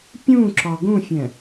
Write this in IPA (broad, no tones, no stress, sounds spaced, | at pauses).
pʲ ũ ǁ ɒ ɡ ũ fʲ ɛ̃